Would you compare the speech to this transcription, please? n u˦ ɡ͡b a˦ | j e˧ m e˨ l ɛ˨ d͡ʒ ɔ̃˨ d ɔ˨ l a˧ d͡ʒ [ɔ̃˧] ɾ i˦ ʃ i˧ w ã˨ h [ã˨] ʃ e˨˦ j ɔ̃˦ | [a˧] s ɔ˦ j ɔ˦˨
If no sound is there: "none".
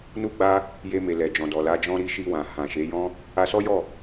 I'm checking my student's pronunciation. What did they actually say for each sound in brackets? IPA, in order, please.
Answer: ɔ̃˦, ã˨, a˧

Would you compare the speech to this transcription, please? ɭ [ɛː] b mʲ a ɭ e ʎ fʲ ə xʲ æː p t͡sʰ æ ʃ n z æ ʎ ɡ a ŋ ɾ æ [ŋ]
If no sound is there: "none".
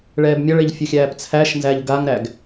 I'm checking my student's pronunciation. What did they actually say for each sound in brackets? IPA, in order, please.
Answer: ɛː, ɡ

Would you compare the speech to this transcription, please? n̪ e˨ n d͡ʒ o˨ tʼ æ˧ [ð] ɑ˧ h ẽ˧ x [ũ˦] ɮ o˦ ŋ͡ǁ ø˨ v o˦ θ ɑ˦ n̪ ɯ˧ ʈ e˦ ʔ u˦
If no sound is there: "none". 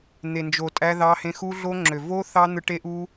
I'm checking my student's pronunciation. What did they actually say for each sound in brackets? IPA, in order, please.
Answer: ð, u˦

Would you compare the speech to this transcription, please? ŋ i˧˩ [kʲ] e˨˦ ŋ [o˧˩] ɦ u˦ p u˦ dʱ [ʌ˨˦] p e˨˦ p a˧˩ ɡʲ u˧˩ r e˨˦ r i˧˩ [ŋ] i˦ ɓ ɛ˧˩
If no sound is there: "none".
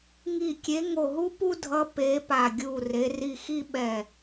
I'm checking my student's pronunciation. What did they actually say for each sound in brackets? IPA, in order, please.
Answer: kʲ, o˧˩, ʌ˨˦, x

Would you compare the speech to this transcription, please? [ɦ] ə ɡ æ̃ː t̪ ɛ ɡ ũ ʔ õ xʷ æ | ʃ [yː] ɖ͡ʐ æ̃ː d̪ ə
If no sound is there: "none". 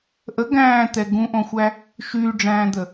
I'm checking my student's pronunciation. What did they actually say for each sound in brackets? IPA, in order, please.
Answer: ʔ, yː

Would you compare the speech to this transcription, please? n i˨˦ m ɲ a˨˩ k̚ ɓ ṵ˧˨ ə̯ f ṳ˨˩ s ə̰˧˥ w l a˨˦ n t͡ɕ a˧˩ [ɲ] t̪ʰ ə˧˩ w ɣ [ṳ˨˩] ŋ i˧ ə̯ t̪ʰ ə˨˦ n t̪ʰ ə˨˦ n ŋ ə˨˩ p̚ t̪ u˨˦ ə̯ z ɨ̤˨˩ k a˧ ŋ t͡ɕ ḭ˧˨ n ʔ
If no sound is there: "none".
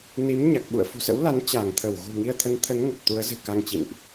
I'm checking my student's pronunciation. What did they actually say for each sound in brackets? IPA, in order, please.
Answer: ŋ, ṳ˨˩

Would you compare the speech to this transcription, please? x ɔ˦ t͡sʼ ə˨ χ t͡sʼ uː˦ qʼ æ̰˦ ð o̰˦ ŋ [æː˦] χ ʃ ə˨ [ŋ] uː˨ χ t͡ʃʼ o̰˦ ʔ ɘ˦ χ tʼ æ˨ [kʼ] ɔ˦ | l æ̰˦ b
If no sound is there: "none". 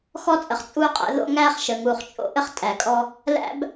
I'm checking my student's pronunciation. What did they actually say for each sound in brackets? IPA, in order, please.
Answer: æː˦, ŋ, kʼ

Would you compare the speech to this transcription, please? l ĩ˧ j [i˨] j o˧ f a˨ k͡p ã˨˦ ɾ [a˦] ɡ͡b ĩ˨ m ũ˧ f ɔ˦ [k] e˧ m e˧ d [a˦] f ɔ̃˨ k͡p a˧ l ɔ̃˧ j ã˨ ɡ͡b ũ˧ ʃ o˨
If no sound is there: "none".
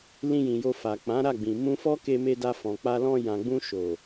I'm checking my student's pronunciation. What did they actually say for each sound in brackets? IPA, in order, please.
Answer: ĩ˨, a˦˨, k, a˧

